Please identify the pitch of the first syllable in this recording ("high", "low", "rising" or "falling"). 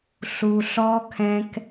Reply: low